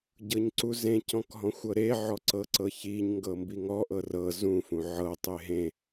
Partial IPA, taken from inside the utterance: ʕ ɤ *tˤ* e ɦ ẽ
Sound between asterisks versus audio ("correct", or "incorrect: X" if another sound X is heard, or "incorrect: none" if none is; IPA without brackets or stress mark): correct